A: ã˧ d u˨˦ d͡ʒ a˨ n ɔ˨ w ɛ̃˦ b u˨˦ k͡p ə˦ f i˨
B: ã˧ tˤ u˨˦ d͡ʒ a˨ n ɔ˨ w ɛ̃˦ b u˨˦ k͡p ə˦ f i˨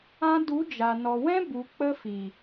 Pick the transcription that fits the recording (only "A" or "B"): A